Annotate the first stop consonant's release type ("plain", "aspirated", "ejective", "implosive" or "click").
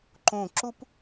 click